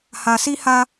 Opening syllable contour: low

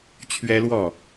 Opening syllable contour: high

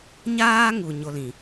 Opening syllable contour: high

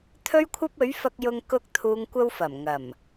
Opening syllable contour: high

